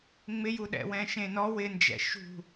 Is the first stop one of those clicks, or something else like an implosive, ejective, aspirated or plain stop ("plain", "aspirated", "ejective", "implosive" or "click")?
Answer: implosive